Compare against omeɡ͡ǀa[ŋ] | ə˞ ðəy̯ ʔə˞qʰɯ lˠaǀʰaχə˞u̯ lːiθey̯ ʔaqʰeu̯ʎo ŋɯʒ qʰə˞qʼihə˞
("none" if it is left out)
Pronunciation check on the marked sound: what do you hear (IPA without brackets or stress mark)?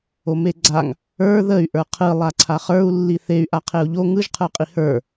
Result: ŋ